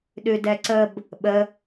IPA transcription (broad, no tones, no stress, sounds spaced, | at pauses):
ɗ ʉ d ɛ ǀ ə b | ɓ ə